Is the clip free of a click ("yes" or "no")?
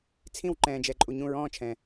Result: no